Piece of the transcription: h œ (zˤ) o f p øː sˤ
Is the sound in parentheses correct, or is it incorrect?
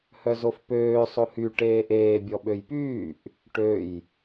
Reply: incorrect